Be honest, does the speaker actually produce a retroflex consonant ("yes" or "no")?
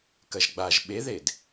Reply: no